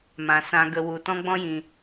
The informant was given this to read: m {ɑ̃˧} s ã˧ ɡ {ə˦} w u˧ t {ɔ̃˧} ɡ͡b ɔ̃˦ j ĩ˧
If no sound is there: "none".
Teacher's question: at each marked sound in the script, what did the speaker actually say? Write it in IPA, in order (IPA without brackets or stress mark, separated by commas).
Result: ã˧, ə˧, ɔ̃˦